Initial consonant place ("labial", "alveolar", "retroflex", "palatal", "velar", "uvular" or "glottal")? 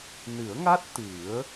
alveolar